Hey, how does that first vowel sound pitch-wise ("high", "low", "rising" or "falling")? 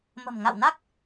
low